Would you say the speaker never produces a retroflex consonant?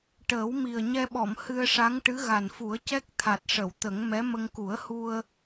no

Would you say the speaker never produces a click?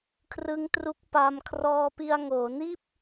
yes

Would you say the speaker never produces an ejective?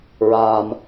yes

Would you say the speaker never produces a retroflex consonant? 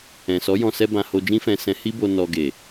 yes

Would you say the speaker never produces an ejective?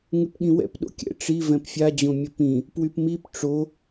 yes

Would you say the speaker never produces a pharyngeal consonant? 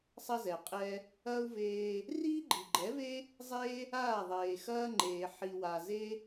no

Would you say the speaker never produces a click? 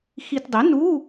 yes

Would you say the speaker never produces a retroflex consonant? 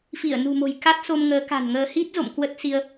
yes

